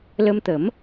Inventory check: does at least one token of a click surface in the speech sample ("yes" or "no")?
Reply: no